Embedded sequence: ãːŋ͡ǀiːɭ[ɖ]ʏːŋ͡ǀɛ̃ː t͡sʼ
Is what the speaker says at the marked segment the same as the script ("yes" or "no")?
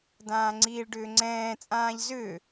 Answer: yes